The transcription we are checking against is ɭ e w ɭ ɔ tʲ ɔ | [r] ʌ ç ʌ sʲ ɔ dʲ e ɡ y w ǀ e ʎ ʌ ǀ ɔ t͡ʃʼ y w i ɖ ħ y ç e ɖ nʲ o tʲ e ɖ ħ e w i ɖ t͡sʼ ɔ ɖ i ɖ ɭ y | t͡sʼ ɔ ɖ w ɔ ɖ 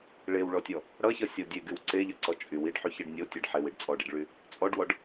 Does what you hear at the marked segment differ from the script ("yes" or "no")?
yes